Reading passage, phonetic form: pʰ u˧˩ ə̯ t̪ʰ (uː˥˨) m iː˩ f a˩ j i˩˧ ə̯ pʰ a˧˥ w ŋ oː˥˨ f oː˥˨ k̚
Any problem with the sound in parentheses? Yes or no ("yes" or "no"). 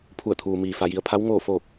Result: yes